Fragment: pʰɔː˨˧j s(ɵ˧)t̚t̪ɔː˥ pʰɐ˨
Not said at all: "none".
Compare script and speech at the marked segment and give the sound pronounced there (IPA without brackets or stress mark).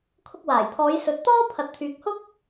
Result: ɵ˨